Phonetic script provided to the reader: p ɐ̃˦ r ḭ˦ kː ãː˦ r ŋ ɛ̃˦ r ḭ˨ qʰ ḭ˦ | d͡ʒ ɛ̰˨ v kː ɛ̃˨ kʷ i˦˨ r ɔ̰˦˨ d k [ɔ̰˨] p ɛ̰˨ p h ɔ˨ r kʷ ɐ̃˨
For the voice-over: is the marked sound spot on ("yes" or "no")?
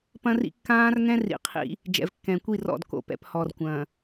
no